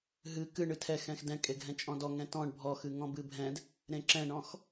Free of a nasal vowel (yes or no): no